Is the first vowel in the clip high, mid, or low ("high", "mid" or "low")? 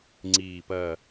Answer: high